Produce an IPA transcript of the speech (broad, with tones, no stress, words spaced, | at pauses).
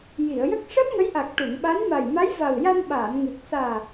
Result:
ji˨˩˨ə̯jə˦˥k̚ ʂəː˦˥p̚ŋə˧˥jʔa˨˩k̚ ʈu˨˩˨ŋɓa˧˥n ma˨˩jma˧˥jva˨˩wja˧n ɓaː˨˩˨n ŋɨ˨˩k̚ saː˨˩